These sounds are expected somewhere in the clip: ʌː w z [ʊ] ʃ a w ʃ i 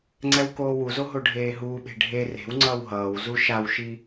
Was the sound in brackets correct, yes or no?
no